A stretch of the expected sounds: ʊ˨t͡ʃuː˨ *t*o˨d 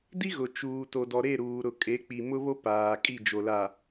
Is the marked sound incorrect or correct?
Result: correct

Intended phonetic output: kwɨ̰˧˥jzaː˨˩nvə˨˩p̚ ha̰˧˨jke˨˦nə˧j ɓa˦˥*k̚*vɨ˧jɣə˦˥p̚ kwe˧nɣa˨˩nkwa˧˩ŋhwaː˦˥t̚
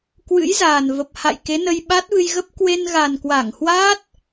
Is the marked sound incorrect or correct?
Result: incorrect: t̚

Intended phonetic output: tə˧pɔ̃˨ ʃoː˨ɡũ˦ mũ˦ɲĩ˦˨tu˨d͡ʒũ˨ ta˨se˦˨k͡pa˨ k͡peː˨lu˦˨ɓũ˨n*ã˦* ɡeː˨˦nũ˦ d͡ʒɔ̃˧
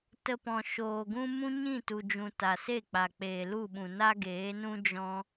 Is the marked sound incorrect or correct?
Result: incorrect: a˦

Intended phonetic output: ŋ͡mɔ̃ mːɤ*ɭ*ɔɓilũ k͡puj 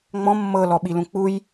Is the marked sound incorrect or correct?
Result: incorrect: l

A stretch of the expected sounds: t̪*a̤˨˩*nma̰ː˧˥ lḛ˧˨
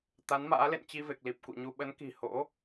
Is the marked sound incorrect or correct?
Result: incorrect: a˨˦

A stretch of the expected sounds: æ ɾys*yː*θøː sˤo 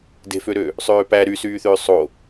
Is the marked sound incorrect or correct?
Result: correct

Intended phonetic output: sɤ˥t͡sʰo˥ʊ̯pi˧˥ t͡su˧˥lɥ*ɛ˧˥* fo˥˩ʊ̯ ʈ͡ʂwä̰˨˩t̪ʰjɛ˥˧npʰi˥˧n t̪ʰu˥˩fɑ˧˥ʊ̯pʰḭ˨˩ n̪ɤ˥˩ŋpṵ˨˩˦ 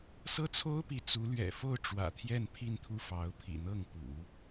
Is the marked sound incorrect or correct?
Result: incorrect: ɛ̰˨˩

